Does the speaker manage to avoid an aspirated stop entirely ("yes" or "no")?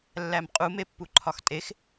no